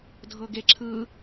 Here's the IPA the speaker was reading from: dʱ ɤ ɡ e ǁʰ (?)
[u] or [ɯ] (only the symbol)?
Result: ɯ